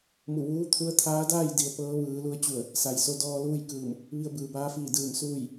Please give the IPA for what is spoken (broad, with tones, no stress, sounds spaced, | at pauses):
m u˧˩ ʋ uː˧˥ t̪ʰ u˧˥ ə̯ t̪ʰ aː˧˥ d aː˥˨ j d i˩˧ ə̯ p ɤː˧˥ ʋ ɯː˩˧ l u˧ ə̯ t͡ɕ u˧˩ ə̯ | s a˩ j s o˧ d ɔː˧ l uː˥˨ j k ɯː˧˩ m | ʋ i˧ ə̯ b ɯː˩ b aː˧˥ f iː˧˩ d ɯː˧˩ m s uː˥˨ j